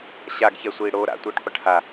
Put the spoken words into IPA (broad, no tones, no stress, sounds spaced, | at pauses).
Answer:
ɕ a ɡ ç ɛ sʷ iː ɽ o ɾ a̰ tʷ ɯː ʈ qʷ ʌ ʈ h a